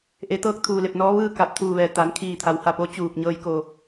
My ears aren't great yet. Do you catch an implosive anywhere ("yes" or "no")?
no